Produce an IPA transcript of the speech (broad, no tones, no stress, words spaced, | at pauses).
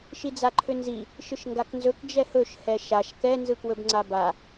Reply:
ʃid͡zaǃʰʏnzi | ʃɯʃŋɡaknzɵk d͡ʒɛhɵʃ hɛʃaʃ kɛ nzɯkwɵbŋ͡ǀaba